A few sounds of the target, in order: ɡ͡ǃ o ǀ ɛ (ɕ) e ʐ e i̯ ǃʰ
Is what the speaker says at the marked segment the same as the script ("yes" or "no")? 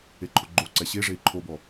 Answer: yes